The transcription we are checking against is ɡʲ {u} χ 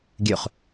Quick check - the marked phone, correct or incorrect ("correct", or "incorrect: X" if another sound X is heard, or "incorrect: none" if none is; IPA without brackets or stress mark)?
incorrect: ʉ